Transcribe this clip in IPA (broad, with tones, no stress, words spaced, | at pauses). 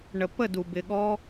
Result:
ɳə˨pə˦˨du˨ bɪ˨ɠɔ˦